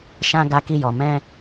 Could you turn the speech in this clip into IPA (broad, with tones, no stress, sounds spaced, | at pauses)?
ʃ ã˦ ɡ a˦ k i˦ j ɔ˧ m ɛ̃˦